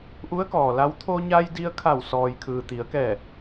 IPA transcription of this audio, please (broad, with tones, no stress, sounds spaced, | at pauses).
ʔ u˧˥ ə̯ k ɔː˩ l a˧˥ w t̪ʰ o˧ ɲ a˧ j d i˧ ə̯ kʰ a˧˩ w s ɔː˩ j kʰ ɯː˩ t̪ i˩˧ ə̯ k ɛː˧˩